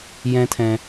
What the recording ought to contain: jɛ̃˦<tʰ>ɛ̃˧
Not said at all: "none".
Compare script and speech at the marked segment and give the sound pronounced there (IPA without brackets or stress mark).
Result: tʰ